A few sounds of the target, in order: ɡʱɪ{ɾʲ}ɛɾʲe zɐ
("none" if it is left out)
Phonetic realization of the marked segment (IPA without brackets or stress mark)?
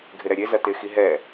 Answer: ɾ